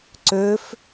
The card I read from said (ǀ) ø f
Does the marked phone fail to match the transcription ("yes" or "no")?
no